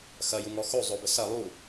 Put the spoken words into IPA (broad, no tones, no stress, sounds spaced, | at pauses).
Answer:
x ɐ j u ŋ ɔ x o zˤ o b ə s ɐ lˠ u